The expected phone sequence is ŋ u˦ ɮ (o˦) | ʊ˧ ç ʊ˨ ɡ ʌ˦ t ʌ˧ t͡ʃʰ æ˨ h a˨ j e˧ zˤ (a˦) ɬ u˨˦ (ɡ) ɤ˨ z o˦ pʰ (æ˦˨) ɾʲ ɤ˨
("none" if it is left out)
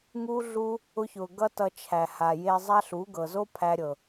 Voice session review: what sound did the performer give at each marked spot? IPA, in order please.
u˦, a˦, ɡ, æ˧

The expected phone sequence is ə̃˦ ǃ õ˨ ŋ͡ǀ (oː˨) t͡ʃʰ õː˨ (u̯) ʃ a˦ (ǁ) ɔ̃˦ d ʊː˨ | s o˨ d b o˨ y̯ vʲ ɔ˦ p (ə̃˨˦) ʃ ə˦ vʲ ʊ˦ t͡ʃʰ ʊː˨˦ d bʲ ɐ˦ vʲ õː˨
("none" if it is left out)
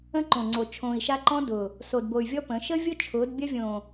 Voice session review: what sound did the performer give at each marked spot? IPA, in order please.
o˨, i̯, ǃ, ə̃˨˦

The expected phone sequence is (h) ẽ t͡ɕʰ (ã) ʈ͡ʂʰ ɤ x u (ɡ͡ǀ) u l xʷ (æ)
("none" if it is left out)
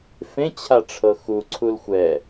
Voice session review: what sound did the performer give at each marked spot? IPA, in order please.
f, a, ǀʰ, ɛ

